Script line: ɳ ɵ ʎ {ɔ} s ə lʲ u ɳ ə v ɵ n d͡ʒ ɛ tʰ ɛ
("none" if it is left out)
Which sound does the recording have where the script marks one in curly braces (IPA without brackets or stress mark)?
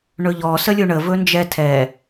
ɔ